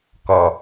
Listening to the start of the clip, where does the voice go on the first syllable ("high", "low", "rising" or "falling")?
low